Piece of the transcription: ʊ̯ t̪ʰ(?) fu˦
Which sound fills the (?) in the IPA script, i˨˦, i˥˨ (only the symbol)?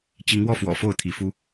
i˨˦